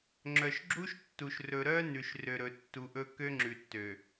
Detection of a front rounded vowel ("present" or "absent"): present